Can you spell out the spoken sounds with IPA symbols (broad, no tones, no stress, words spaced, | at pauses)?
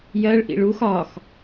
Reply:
jɜɭ ʔḭɭux ɒx